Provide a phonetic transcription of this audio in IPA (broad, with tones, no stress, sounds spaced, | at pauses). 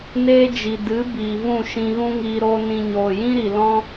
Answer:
n eː˦ d͡ʒ i˨ d ɨ˨˦ b iː˨ v ũ˦˨ ʃ ĩ˧ ɣ ũ˦ ŋ iː˧ ɾ oː˦ n ĩ˧ ɲ oː˨ j ĩ˦ ɾ i˨ l ɔ̃˦